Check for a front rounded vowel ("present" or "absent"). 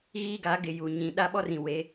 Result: absent